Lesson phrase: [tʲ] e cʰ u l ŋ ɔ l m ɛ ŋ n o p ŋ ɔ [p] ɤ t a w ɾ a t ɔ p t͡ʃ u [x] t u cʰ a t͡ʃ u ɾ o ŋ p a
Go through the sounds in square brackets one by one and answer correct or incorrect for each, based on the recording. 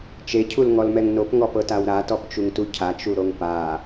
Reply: incorrect: t͡ʃ, correct, incorrect: ŋ

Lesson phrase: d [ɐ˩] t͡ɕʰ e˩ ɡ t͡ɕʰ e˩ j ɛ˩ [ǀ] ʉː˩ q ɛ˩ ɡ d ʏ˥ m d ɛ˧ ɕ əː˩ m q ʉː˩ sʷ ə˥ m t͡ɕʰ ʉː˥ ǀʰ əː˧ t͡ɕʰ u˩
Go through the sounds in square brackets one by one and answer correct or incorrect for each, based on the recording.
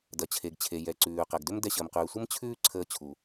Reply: correct, correct

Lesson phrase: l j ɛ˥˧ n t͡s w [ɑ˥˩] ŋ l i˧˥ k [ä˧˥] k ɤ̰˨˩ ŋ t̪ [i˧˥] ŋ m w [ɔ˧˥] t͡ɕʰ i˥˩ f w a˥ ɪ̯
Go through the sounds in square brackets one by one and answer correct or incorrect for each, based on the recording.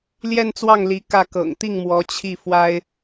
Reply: correct, incorrect: ä˥˩, incorrect: i˥˩, correct

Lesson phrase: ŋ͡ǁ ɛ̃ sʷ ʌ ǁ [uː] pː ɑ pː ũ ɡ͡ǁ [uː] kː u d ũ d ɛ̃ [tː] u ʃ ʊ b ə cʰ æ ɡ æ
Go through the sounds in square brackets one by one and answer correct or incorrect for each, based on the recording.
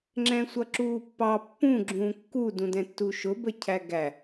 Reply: correct, incorrect: ũː, correct

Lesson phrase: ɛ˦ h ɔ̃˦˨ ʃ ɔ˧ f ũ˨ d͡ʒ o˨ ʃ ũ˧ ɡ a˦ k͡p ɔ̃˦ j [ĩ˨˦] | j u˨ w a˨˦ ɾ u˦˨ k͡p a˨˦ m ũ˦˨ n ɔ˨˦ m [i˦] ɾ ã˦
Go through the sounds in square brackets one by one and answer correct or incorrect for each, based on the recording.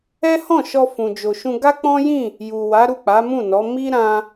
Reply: incorrect: ĩ˦˨, correct

